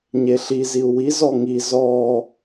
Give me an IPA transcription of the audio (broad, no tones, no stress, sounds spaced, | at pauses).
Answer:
ɲ e ɬ i z i u̯ w i z ɔ ŋ i z ɔː